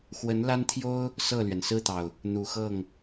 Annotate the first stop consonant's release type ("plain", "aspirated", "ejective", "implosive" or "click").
aspirated